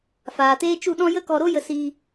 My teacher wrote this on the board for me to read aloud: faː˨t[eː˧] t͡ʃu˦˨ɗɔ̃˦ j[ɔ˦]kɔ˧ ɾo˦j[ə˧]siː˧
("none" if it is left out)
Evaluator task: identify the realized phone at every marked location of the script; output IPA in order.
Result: eː˦, ə˦, ə˧

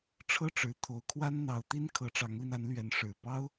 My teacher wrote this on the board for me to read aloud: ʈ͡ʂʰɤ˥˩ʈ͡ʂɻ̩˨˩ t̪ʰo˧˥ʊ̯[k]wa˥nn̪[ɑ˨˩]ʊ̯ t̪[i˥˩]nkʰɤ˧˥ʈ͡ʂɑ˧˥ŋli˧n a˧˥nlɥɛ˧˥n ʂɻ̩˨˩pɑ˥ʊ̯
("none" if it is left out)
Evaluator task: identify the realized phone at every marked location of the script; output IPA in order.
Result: kʰ, ɑ˧˥, i˥

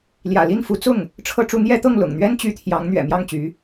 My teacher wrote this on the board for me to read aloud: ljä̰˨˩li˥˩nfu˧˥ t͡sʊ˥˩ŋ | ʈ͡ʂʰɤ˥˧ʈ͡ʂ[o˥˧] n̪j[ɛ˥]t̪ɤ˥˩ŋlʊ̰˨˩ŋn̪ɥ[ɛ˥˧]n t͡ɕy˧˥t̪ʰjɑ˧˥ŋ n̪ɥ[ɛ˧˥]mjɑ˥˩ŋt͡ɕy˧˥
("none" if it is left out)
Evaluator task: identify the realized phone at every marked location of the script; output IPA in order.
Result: u˥˧, ɛ˥˧, ɛ˥, ɛ̰˨˩

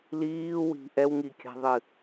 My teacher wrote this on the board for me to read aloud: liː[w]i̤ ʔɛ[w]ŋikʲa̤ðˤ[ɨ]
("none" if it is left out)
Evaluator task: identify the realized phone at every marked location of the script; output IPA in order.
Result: w, w, ɨ

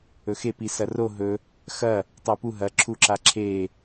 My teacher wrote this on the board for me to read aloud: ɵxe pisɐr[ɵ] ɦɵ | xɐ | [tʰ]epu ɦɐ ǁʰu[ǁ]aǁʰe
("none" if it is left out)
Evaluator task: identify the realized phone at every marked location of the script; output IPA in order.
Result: o, tˤ, ǁ

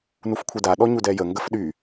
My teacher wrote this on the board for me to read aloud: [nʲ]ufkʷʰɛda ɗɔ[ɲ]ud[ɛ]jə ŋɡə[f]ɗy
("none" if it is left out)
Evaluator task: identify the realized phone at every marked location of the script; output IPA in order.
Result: n, ɲ, ɛ, f

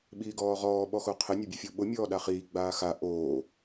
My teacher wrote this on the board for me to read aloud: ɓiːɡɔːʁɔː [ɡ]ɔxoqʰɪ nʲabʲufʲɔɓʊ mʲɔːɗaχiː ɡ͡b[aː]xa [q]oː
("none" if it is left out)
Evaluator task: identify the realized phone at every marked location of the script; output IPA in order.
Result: ɓ, aː, ʔ

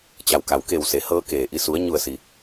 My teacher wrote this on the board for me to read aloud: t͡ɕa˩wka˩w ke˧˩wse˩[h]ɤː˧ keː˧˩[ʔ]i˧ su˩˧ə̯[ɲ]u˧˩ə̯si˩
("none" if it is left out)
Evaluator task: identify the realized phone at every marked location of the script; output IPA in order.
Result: h, ʔ, ɲ

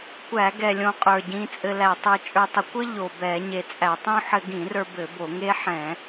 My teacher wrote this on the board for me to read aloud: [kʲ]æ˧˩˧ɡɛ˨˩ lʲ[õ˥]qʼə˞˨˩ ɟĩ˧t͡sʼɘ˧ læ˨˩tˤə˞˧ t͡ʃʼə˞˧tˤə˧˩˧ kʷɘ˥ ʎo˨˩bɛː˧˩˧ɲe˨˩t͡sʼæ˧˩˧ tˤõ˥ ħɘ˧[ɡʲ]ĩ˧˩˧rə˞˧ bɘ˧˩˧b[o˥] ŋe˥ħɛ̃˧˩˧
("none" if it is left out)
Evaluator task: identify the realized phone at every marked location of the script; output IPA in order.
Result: kʷ, õ˧, ɡ, o˧˩˧

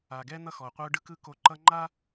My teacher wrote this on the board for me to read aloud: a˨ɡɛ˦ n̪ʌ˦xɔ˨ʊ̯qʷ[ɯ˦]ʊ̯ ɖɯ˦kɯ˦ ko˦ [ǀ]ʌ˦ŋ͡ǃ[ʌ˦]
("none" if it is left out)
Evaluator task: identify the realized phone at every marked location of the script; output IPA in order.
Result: ɯ˦, ǃ, a˦

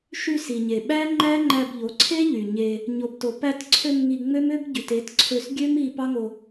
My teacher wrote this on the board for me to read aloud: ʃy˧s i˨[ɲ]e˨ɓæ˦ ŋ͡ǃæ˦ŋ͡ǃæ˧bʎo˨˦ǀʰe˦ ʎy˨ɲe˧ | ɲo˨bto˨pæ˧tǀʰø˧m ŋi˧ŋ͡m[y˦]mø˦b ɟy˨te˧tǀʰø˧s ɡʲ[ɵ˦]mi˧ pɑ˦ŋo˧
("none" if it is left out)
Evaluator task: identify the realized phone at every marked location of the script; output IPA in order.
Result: ɲ, ø˦, ø˦

